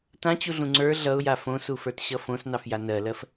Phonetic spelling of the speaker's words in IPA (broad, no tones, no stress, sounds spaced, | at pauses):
t ã t͡ɕ u ɮ ũ ŋ͡ǀ ə˞ ɮ ʌ ʊ̯ j a f õ s u f ə˞ t ɕ ʌ f õ s n ɑ f j a n ɜ l ɜ f